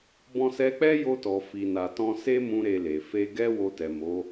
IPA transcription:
b ɔ̃˧ s ɛ˧ k͡p ɛ˦ j o˧ t ɔ˨ f i˨ n a˨ t ɔ̃˧ s e˦ m ũ˦ ɾ e˧ l e˨ f e˧ ɡ ɛ˦ w o˧ t ɛ˨ m o˨˦

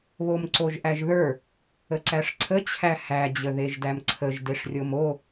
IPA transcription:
β o m ǀ o ʒ ʔ æ ʒ ð ə˞ | ə ǀ æ ʂ ǀʰ ə t͡ɕʰ æ h æ d͡ʑ ə ð e ʒ d æ m ǀʰ ə ʒ d e ʂ rʲ o m o

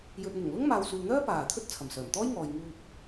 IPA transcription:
j ɵ˨ t̚ n̪ ʊ˨˩ ŋ l ʊ˥ ŋ m aː˨ w s uː˨ n̪ œː˥ p aː˨˩ t̪ʰ ɵ˥ t̚ t͡sʰ ɐ˨˩ m s œː˨˩ m t̪ ɔː˥ j ŋ ɔː˨ j ŋ uː˧ p̚

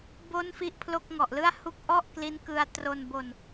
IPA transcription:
b o˦˥ n f i˦˥ ʔ pʰ l o˥˩ k̚ ŋ ɔ˨˩ ʔ l ɯ˥˩ a̯ h u˦˥ k̚ ʔ ɔ˥˩ ʔ k l i˦˥ n k ɯ˧ a̯ t r o˧ n b o˧ n

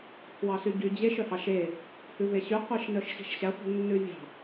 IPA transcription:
pʰ w ɑ s y ɟ y d͡ʑ e ʃ œ h ɑ ʃ e | h ʉ v e ɕ y qʷ i ʃ n œ ʃ ɕ i̤ ʃ ɕ æ χʷ i̤ nː ʉ vʲ ɑ̤

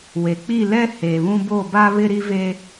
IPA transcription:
w e˨ k͡p i˦˨ l ɛ˦ h e˨ β ũ˦ b o˦˨ b a˦ β ɪ˦ ɾ i˦ v e˦

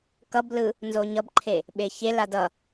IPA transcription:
k ʌ b l ɯ | n z o ɲ ʌ b ǃʰ e | ɓ e ç e l a d ʌ

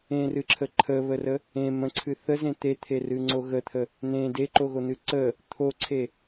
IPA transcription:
ẽ r ɨ ǁʰ ə ǃʰ ə β ə r ə | ẽ m ə̃ ǀʰ ɨ θ ə z ẽ t̪ e t̪ʰ e r ɨ ŋ͡ǀ o ɣ ə t̪ʰ ə | n̪ ẽ d e ǃ o ɣ o n̪ ɨ ǀ ə | t̪ʰ o ǀʰ e

